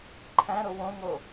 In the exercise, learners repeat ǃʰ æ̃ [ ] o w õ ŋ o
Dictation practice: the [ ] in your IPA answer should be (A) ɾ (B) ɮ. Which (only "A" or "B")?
A